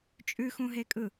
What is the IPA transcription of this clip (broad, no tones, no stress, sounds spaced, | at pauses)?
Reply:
t͡ʃʼ ʉ x ũ ɦ e kʼ ɯ